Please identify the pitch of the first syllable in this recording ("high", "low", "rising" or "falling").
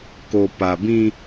low